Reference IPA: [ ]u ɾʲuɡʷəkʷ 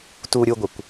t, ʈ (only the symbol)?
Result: t